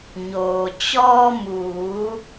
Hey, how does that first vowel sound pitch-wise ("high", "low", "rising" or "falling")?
low